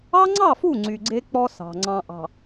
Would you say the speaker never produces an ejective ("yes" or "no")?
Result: yes